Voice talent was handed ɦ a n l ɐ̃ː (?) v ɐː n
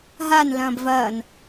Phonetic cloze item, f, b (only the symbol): b